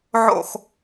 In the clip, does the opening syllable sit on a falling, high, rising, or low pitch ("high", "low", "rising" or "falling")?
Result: falling